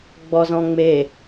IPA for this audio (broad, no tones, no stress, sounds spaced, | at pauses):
ɡ͡b ɔ z ɔ̃ ŋ͡m e